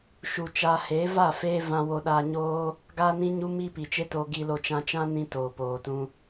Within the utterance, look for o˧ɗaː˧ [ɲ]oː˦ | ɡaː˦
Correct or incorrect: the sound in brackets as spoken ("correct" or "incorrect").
correct